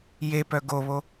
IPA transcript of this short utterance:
j e p œ ɡ o β o

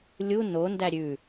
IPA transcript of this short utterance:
lʲ u n o n d æ ɾʲ ʉ

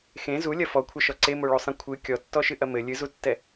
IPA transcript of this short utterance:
x ẽ z u lʲ ɐ f ɔ kʷʰ ɐ ʃ ɔ ǀ e m o ɭ o sˤ ẽ kʷʰ ɨ kʲ ɔ tː ɔ ʃ ɨ ʔ ɐ m ɘ lʲ ɨ z u tː ɛ

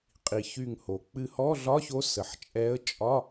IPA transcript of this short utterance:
qʼ i˩ ç y˧˩ ŋ h o˩ k͡p ɨ˧˩ h ɔ˧˥˧ ɮ ɒ˧˥˧ ç o˧˥ s ə˩ ħ t͡ʃʼ ɛ˧˥ ə̯ t͡ʃʼ ɒ˧˥˧

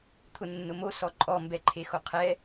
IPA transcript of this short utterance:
t̪ʰ ʊ nː ʊ m o s ɔ ǃʼ ɔ m b ɛ ǃʰ e x o qʰ ɛ

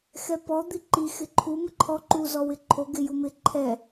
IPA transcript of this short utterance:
x ɛ p ɔ d̪ i ǃ i x ɪ ǃʰ u m ɪ ǃʰ ɔ ǃ u z ɔ w ɪ ǃʰ o ɡ ɪ j u m ɪ ǃʰ ɛ

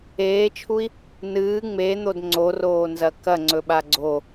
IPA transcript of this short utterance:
eː t͡ʃʰ u i̯ | n ɨː ŋ͡m e n̪ o d ŋ͡ǀ o r oː n z ɐ k ɐ ŋ͡ǀ ɵ ɓ a ɡ͡ǀ o

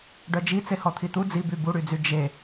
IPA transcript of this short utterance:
ɖ œ d͡ʒ i t͡s e h ɔ t̪ʰ i t̪ u d͡z i b y b u ɽ y d͡z y d͡ʒ e

